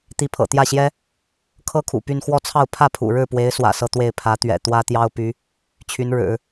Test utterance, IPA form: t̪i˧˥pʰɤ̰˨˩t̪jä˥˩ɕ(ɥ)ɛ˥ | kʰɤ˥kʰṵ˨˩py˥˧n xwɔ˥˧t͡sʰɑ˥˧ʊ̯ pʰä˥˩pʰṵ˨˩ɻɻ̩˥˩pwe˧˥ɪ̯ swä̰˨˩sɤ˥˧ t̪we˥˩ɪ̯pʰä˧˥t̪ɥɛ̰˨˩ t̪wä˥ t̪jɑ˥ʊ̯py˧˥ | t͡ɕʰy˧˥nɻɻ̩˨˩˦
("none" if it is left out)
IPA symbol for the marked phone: j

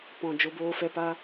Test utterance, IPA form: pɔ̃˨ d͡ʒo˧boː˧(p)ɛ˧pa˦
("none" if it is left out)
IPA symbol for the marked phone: f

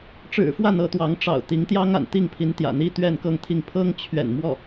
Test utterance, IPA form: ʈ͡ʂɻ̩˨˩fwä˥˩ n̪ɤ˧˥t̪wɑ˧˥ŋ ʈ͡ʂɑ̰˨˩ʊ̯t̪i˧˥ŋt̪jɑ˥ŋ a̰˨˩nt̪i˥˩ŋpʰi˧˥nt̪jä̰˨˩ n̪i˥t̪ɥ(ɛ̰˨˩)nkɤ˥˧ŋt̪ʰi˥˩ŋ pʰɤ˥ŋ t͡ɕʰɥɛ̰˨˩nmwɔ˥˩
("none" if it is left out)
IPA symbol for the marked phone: ɛ˥˧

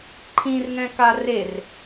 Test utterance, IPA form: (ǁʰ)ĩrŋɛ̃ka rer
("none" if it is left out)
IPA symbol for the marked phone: ǃʰ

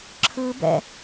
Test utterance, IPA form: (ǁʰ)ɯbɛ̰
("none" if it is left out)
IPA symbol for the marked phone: ǁʰ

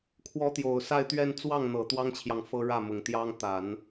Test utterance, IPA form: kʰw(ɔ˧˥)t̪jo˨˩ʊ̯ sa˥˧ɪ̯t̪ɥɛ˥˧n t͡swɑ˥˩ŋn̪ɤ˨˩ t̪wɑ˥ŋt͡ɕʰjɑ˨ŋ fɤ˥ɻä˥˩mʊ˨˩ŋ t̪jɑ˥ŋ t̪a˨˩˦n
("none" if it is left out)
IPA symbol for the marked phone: ɔ˧˥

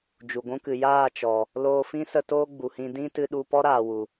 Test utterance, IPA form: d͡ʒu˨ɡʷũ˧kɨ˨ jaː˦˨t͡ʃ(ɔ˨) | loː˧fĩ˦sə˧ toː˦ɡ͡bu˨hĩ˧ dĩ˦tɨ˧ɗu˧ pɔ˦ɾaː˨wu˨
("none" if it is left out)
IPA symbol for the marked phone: ɔ˨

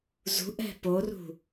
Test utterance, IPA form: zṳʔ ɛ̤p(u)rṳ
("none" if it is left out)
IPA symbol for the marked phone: o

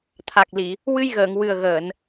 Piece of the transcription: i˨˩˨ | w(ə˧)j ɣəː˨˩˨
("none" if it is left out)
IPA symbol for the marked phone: ɨ˧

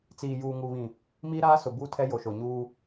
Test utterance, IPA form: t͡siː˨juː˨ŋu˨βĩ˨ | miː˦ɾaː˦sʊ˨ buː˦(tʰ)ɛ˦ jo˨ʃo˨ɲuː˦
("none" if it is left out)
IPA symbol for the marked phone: tʰ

